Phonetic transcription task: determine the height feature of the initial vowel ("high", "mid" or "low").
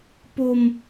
mid